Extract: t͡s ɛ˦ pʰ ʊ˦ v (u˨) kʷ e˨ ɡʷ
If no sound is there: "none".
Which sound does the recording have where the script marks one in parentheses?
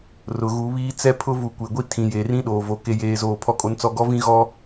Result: u˨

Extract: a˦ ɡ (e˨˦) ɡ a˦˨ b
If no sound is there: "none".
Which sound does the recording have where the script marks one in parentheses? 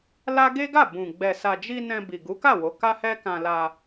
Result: e˦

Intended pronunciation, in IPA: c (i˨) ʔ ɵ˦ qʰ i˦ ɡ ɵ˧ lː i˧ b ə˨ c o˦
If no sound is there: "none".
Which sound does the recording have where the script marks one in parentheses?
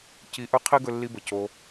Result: i˧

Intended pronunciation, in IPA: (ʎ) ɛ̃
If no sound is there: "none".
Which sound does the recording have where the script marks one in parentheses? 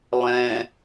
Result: lˠ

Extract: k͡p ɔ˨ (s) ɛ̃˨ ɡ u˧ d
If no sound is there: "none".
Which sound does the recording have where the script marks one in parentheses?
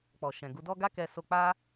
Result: ʃ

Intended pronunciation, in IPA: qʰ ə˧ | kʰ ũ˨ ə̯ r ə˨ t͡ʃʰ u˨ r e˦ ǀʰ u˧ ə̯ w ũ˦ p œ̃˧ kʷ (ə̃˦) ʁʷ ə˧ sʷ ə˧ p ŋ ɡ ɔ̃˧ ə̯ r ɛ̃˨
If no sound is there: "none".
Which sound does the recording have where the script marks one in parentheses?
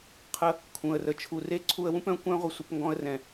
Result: œ̃˦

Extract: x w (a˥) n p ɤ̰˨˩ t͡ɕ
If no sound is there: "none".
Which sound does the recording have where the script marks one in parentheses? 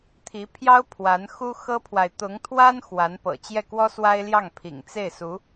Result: a˧˥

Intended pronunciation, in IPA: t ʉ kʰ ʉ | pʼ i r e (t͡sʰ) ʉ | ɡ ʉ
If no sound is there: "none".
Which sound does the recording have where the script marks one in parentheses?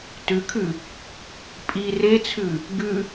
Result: t͡sʰ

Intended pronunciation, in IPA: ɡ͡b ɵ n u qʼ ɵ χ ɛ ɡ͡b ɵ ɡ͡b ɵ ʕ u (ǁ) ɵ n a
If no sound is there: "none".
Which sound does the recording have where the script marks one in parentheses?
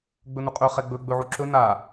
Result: ǁ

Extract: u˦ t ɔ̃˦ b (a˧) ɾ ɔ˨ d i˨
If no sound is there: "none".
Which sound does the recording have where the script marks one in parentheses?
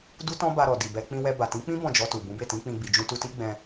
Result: a˧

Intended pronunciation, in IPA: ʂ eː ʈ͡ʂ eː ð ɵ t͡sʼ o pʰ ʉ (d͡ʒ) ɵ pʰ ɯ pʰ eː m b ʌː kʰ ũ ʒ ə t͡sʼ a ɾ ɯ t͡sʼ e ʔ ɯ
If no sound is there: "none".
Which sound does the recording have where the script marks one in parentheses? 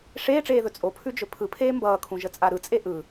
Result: d͡ʒ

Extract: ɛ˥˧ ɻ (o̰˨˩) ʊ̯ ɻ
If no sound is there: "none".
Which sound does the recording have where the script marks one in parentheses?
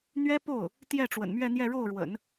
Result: o˥˩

